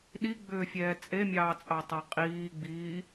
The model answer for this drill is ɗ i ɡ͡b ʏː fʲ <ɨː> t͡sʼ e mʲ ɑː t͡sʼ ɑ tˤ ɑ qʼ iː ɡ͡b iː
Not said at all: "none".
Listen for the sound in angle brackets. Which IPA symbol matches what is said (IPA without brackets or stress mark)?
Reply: ɛː